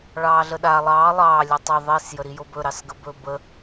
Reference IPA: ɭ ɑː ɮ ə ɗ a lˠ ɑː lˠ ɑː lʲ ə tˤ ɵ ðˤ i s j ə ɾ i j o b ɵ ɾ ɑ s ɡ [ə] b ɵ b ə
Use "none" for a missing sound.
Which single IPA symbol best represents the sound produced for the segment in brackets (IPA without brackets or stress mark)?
ə